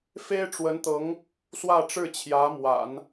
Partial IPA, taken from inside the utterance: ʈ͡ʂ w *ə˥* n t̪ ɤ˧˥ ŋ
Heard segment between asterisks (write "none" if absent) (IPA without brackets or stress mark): ə˧˥